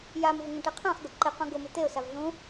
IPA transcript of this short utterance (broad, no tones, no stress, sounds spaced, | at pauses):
j a m v ʊ ŋ ũ ʈ e qʰ ã χ ɡ ʊ ǃ ɪ q ũ ɡ ʊ m ɪ t̪ e ʊ̯ s a v ɮ ũ